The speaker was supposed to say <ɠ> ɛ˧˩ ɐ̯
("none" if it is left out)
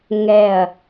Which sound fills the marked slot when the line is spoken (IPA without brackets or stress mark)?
ŋ